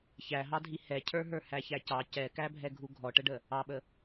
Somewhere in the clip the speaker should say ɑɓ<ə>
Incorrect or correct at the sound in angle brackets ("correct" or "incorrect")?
correct